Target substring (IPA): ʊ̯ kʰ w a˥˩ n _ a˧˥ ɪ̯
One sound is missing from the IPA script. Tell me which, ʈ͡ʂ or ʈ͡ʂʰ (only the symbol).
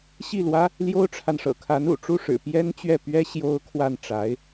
ʈ͡ʂ